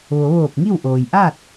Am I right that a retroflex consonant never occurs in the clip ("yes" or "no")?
yes